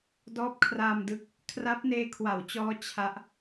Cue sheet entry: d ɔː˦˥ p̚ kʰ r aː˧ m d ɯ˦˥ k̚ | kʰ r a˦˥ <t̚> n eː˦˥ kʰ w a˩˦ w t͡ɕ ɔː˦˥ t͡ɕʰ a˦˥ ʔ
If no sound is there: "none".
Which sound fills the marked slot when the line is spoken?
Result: p̚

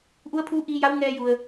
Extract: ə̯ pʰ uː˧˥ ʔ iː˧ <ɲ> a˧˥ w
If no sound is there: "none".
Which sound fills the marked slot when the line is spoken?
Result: j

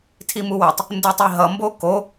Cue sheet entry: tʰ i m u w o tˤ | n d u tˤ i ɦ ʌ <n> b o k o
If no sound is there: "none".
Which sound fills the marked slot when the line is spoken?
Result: m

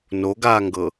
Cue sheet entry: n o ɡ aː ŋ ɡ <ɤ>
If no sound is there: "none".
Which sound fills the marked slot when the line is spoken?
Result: ɤ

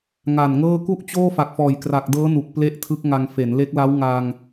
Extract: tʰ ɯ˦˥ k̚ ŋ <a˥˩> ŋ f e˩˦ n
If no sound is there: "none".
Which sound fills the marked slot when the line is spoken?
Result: a˧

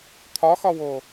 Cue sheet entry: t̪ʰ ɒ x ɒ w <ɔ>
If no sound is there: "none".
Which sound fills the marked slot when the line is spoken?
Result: o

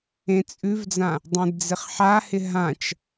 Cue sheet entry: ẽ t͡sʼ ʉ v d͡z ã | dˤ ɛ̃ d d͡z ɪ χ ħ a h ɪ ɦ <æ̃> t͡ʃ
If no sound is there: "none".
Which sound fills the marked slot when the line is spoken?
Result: ã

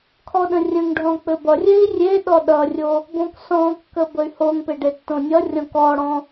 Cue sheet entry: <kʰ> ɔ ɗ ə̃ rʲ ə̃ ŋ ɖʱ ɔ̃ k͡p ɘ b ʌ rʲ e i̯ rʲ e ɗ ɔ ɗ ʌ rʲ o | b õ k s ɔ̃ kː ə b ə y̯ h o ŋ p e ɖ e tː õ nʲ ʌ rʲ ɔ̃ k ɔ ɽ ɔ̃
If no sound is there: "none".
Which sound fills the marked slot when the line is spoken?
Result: kʰ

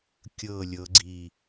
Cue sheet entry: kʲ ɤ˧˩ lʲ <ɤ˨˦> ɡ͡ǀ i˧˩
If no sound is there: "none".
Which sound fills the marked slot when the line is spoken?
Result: ɤ˨˦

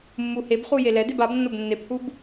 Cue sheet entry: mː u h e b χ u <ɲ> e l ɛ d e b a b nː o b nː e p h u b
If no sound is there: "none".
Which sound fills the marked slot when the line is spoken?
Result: j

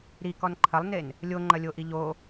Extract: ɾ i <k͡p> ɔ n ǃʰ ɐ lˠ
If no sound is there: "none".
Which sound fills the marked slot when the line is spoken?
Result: k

